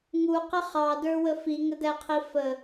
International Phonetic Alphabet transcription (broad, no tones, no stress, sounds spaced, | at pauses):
ŋ u q ɪ χ ɑ d ə˞ w ə f i ŋ ə d æ qʰ i f ə